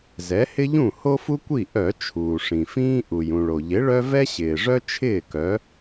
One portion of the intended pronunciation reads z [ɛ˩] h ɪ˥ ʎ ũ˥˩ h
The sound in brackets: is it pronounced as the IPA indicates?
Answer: no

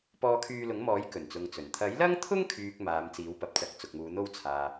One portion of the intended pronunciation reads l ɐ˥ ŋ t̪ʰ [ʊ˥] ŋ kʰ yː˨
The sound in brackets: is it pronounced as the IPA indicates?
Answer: yes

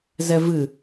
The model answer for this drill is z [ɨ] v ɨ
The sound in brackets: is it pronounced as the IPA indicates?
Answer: no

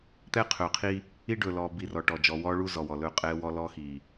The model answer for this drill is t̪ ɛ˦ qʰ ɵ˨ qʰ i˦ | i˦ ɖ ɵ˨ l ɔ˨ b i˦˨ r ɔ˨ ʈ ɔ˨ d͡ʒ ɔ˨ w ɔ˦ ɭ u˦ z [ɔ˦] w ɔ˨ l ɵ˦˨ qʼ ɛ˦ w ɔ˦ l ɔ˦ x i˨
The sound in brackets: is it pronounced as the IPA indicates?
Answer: no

